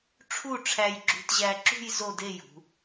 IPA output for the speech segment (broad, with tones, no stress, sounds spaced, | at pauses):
ʈ͡ʂʰ u˥˧ ʈ͡ʂʰ æ˧ j ɡ͡ǁ ṳ˧ t ʑ æ˧ ǁ ṳ˥˧ j z o˥˧ d e˥˧ j ṳ˩˧